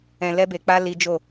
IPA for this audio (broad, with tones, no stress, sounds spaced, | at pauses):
ɛ̃˧ l ɛ˦ b e˧ k͡p a˦ l i˦ d͡ʒ o˦˨